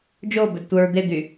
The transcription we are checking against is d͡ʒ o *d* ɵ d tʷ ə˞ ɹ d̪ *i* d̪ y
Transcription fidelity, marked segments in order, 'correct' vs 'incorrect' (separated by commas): incorrect, incorrect